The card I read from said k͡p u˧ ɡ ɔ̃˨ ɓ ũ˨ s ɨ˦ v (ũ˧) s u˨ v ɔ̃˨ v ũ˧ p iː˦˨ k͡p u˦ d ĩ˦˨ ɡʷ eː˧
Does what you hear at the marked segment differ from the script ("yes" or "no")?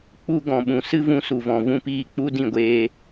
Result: no